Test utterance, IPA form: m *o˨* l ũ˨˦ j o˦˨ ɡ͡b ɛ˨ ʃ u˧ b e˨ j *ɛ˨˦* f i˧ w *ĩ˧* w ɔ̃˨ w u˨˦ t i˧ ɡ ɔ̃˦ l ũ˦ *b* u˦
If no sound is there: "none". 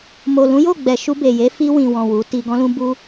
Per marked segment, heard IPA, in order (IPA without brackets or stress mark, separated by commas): o˨, e˨˦, ĩ˨, b